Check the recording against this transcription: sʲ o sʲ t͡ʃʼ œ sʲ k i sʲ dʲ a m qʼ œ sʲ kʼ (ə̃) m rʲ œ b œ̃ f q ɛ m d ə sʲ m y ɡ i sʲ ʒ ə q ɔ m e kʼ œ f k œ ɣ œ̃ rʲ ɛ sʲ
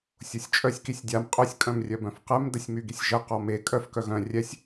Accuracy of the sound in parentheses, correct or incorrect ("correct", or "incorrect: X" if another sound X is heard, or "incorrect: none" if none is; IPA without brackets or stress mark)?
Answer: incorrect: œ̃